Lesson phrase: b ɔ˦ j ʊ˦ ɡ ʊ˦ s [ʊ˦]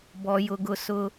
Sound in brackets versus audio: correct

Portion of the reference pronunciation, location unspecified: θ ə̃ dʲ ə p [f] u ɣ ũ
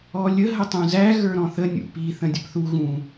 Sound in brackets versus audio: incorrect: θ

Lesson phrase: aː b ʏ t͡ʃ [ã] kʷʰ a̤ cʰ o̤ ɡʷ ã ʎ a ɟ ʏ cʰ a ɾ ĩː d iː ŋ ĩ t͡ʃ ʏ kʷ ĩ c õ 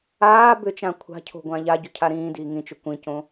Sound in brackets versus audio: correct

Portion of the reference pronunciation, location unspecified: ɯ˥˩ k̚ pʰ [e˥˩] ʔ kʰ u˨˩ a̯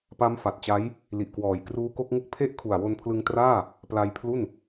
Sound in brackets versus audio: correct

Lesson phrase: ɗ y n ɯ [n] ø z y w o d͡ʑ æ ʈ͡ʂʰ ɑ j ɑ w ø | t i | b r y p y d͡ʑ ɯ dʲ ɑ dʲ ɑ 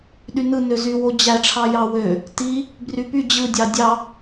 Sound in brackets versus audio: correct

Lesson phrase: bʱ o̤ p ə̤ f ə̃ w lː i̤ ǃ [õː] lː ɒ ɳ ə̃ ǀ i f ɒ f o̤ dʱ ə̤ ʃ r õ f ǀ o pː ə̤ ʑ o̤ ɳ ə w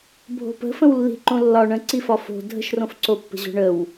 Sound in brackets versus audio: incorrect: õ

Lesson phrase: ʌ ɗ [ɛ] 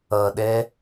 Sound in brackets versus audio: correct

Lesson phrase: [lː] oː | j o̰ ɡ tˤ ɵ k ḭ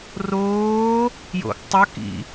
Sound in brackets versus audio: incorrect: r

